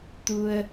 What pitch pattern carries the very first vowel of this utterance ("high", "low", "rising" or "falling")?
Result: low